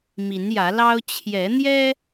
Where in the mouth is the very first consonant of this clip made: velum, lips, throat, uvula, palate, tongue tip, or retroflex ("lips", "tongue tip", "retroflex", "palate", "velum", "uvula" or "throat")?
lips